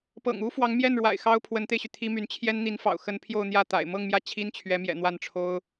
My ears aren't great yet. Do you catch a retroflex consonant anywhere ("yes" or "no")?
yes